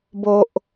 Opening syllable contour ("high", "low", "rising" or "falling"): high